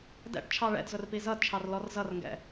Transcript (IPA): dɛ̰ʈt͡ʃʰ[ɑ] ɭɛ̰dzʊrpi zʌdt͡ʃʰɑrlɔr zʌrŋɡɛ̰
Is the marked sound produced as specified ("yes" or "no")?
yes